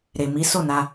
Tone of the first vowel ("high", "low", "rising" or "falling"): low